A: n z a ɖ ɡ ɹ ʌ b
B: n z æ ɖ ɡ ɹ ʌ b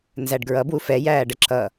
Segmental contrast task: B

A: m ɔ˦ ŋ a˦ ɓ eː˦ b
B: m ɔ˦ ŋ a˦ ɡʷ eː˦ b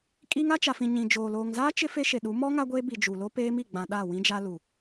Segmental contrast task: B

